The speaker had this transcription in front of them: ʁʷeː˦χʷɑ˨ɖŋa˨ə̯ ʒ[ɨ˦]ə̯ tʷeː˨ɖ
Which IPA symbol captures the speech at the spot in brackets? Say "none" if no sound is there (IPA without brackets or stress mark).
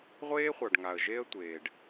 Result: e˦